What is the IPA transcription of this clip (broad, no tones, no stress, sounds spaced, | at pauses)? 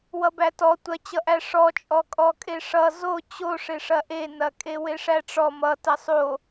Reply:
w ʌ b æ t ɔ tʷ ɐ t͡ɕ ʌ ʔ æ ʂ ɔ t͡ʃʼ ɔ kʼ ɔ kʼ e ʂ ʌ z o t͡ɕ o ʂ e ʂ ɐ ʔ e n ɐ kʼ e w e ʂ æ ʈ͡ʂ ɔ m ʌ t ɐ sˤ o